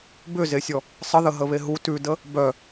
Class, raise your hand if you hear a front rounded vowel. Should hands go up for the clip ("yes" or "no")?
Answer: yes